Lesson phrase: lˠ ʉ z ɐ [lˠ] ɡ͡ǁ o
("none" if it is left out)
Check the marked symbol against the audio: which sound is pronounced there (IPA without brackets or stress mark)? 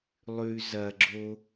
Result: none